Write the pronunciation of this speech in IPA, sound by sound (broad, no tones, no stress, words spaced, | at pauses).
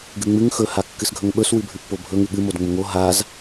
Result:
ɡɨŋ͡mɨŋ xɵ hakːɨsɡʱɵŋɓɵs wɨbʱʉpːobʱɵ ŋʉɠɨ modŋ͡mʊŋo ɦaz